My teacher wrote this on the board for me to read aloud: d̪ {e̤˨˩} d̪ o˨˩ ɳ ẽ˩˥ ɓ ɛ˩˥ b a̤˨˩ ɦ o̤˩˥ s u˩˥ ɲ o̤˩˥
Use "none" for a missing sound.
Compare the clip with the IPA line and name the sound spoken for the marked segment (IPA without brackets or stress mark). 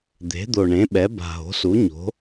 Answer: e̤˩˥